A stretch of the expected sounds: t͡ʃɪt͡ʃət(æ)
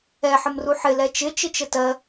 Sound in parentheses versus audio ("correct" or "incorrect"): incorrect